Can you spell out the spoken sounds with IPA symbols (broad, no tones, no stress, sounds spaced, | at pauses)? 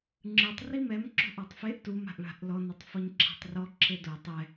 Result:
ŋ͡ǁ ɯ tˤ r i m ɛ m ǁ o̤ ʔ ɔ tˤ f e ʔ t u m a̤ ʔ ɭ a̤ ʔ l ɔ n ɛ tˤ f ɔ ɲ ǁʰ ɛ̤ tˤ r ɔ ǁʰ e d o tˤ ɛ